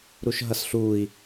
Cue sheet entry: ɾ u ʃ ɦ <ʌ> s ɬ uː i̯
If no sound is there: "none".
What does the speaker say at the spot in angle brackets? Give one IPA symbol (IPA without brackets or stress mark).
ʌ